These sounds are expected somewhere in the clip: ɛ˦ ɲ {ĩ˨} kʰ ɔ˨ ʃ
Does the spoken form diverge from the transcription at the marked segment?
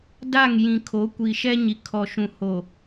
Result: yes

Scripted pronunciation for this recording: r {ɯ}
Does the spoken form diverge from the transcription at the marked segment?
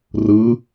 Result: no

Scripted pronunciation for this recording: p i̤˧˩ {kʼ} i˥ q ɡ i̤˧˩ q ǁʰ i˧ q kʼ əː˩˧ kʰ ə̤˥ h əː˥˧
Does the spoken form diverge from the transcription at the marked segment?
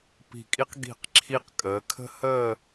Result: no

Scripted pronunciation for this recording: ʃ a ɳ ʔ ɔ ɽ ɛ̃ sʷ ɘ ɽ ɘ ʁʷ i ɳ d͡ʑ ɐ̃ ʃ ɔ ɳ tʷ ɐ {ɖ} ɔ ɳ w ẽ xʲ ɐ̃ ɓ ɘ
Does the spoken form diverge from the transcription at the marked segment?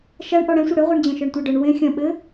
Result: no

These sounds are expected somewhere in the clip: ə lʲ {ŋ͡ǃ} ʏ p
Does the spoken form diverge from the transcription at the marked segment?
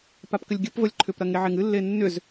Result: yes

